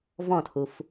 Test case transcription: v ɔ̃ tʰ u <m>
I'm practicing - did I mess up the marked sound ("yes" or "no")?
yes